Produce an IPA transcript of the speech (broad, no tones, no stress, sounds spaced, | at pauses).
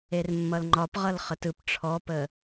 e r mː ʌ l ŋ͡ǃ ɒ p ʁ ʌ l χ ə t ɯ p ʈ͡ʂʰ ɔ p ə